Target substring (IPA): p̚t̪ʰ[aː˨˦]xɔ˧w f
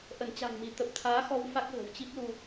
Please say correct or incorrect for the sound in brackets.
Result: correct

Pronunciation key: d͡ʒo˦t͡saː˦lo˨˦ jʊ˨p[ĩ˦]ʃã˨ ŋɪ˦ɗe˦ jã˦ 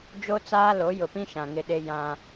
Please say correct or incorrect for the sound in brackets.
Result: correct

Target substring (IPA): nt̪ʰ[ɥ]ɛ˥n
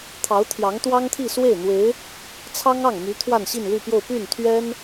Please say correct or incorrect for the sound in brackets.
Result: correct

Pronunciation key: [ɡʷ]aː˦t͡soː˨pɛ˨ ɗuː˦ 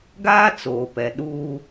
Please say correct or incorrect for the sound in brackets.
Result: incorrect: ɡ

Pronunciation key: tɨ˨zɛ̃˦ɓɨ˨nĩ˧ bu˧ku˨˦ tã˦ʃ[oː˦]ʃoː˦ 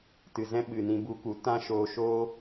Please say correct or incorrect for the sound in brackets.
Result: incorrect: oː˧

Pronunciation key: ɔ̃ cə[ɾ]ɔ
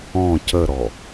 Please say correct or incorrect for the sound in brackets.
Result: correct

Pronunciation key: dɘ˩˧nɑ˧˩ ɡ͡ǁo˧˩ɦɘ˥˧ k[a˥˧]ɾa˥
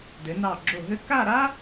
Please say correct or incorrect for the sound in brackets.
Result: correct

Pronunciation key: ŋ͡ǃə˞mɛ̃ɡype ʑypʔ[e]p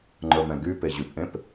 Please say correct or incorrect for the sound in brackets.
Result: incorrect: ẽ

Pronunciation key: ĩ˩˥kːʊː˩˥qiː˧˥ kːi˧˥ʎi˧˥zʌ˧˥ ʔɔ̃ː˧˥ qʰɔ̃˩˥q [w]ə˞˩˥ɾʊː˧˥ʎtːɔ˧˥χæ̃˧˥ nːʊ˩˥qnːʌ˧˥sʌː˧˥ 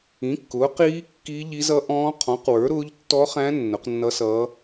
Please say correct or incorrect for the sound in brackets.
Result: correct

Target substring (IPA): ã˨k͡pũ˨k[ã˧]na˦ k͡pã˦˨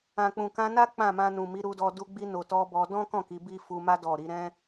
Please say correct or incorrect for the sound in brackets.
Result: correct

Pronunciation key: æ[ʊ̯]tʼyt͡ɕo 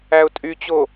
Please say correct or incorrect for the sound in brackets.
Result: correct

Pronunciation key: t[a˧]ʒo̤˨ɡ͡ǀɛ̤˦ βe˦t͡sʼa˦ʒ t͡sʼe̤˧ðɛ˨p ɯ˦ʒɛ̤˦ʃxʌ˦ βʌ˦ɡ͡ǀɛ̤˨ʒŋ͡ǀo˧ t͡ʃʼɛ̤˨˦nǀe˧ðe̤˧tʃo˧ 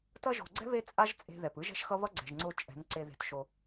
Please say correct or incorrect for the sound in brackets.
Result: incorrect: ʌ˧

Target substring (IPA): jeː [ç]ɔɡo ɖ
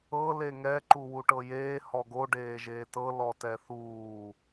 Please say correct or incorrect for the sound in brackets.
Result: incorrect: h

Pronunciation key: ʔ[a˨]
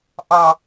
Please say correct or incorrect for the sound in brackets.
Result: incorrect: ɑ˨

